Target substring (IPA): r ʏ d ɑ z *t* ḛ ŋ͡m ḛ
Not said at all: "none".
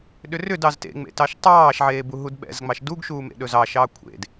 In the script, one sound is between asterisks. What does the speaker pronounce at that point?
t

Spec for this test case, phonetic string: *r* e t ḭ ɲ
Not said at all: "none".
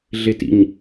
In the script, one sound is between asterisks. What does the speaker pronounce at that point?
ɮ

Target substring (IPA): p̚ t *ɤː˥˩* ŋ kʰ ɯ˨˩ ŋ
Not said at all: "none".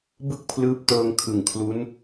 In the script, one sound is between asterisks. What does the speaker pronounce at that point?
ɤː˧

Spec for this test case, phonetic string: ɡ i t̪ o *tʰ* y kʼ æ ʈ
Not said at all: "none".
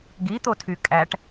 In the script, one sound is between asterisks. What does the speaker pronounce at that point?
tʰ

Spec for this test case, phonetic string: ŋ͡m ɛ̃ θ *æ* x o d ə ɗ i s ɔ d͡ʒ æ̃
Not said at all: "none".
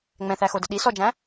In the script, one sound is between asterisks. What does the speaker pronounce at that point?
æ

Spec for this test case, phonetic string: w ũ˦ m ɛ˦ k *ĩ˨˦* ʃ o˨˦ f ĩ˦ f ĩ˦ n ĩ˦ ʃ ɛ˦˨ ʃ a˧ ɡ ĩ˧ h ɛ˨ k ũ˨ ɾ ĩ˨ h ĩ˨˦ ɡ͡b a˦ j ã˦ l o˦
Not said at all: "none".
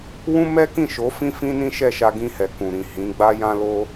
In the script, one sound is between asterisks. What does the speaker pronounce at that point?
ĩ˦˨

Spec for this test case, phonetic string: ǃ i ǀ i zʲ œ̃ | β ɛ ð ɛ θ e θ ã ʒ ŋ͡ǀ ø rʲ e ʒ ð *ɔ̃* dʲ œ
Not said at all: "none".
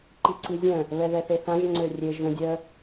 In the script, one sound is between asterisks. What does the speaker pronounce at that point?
ə̃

